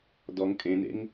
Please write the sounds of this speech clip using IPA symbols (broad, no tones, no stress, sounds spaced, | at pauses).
d ɔ ŋ kʼ ẽ n ḛ ŋ